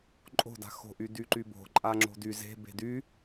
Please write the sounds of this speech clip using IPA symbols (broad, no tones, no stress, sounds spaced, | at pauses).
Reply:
ǃʼ o̤ d a̤ x o̤ ʔ y d y ǃ y b o̤ ǃʼ a ŋ͡ǁ o̤ d y z e̤ b e̤ d y